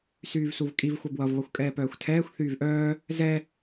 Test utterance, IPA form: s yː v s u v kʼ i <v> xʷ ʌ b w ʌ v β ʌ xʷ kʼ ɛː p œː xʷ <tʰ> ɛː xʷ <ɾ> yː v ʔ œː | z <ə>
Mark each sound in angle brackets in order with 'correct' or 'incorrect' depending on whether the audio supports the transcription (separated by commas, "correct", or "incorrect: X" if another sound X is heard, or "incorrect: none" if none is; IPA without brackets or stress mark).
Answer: correct, correct, incorrect: θ, incorrect: ɛ